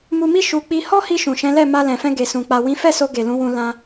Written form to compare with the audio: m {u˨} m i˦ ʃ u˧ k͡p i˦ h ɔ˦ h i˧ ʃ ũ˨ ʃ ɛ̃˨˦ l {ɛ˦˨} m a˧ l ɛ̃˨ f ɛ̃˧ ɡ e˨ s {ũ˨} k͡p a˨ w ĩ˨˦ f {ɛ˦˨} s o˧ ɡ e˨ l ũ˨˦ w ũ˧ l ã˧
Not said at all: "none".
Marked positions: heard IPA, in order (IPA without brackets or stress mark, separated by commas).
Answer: u˧, ɛ˦˨, ũ˨, ɛ˦˨